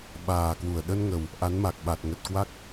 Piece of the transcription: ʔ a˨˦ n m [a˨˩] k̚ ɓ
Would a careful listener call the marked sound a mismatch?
no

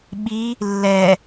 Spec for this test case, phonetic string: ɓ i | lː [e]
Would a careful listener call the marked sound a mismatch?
yes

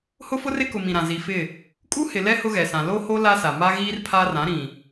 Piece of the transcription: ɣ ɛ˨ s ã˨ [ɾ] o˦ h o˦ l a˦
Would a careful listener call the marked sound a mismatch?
yes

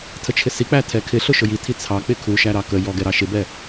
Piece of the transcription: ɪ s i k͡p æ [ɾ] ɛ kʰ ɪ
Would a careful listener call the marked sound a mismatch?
yes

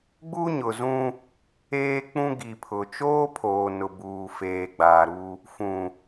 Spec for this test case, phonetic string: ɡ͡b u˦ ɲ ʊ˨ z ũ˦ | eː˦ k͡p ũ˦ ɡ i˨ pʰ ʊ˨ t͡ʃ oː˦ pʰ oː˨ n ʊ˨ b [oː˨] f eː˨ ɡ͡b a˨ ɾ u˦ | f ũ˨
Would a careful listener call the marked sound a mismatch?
yes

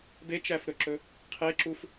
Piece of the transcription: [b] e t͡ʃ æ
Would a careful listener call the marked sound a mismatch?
no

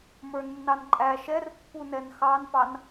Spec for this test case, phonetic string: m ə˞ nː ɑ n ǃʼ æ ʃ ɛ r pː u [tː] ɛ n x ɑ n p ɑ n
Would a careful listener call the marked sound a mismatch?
yes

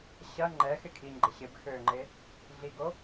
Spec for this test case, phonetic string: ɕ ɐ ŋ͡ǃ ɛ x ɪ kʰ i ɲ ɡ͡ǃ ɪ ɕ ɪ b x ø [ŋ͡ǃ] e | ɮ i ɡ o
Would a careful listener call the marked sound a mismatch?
no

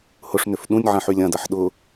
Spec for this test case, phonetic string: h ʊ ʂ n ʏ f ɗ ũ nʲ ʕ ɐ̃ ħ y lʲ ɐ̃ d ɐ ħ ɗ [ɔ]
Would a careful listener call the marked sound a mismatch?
yes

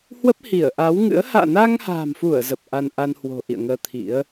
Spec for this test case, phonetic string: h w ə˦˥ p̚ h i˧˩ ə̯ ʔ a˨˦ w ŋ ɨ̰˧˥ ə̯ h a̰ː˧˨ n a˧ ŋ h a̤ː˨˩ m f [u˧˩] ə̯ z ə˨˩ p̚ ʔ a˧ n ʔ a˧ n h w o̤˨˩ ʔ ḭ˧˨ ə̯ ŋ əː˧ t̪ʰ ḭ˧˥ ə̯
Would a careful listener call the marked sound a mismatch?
no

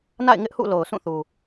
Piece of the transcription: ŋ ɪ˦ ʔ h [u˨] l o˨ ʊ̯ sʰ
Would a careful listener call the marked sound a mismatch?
yes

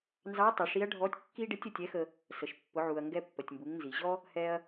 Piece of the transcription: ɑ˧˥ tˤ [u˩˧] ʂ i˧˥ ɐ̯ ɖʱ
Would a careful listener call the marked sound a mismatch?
yes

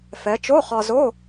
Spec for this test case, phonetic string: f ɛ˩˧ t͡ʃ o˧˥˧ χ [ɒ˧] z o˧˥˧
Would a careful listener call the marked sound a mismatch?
no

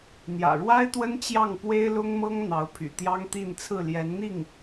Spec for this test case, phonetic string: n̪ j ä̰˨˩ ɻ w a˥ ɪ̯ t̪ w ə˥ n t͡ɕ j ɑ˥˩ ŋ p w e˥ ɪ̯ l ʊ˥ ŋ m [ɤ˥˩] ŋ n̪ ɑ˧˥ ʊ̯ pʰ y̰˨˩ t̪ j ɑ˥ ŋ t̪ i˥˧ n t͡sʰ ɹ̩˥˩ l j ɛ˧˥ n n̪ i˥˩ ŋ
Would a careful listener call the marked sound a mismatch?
yes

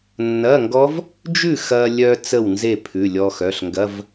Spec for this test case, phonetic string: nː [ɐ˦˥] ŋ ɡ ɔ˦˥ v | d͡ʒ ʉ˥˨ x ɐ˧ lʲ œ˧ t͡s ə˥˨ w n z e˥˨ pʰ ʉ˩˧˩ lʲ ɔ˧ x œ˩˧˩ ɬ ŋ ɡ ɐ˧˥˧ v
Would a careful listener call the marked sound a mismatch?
yes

